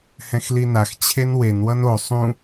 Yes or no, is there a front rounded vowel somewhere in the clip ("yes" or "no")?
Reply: no